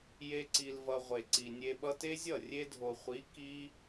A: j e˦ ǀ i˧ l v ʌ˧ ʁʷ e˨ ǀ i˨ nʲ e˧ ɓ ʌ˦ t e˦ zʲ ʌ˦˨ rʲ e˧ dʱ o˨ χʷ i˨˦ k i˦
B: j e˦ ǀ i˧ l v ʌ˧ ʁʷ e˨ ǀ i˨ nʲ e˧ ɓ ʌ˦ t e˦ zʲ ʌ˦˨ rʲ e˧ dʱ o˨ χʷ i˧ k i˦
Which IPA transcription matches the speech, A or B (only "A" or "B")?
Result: A